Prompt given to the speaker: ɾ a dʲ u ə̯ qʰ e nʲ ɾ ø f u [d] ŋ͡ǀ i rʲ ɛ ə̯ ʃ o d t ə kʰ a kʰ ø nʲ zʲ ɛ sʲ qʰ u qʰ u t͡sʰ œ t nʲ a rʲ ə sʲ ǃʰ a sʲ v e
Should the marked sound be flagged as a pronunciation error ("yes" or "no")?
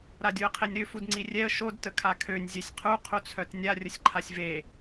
no